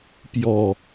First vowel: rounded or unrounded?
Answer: rounded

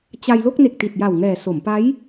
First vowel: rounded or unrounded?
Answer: unrounded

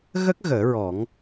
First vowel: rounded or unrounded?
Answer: unrounded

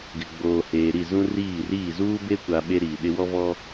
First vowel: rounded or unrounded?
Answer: unrounded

